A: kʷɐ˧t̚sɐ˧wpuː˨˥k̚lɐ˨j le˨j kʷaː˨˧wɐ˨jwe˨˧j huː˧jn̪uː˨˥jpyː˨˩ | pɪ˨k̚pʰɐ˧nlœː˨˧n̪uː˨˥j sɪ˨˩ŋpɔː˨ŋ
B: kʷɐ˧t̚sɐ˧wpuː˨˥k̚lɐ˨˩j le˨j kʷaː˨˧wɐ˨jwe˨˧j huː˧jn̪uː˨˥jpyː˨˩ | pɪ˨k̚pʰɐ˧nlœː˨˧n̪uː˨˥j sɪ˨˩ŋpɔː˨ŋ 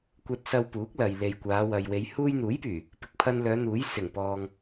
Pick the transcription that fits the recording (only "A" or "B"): A